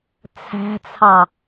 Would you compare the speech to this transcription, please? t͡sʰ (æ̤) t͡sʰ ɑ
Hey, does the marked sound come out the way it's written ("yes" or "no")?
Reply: yes